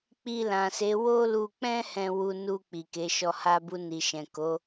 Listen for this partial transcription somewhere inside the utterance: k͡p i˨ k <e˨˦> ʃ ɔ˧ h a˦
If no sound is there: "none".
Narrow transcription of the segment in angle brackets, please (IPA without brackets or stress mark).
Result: e˨˦